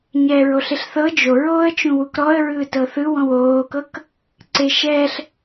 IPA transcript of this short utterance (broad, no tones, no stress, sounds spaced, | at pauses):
ɲ ɛː ɹ o ɬ e ɬ θ ɤ d͡ʒ o ɹ oː ə̯ t͡ʃ ũ w u k ɾ ɔ ə̯ ɹ ɯː t ɤ θ ɯ w ɔ̃ w oː k ɤ k | ǀ e ʃ ɛː ɬ